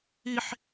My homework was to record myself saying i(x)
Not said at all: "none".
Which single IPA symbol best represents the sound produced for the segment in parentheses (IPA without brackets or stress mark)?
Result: ħ